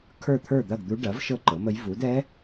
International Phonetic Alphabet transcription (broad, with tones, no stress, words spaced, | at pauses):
kʰə˞˥˨t̪ʰə˞˥˨d̪ɐ˥˨ɡd̪u˧˥ ɖɐ˩˥v ʃɤ˥˨ǃɤ˩˥mə˧˥j vu˩˥d ɛ˧˥